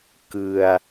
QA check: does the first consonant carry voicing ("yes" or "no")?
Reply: no